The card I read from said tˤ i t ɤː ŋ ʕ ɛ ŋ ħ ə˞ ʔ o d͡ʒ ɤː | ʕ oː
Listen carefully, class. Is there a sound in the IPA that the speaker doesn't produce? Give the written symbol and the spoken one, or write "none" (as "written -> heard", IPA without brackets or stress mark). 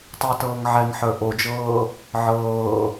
oː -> ɤː